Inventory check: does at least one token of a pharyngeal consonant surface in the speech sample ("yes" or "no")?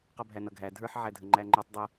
yes